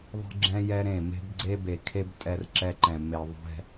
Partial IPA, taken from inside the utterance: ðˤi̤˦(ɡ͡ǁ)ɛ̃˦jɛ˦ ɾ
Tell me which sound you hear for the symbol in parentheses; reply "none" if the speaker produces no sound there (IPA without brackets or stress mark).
ɡ͡ǁ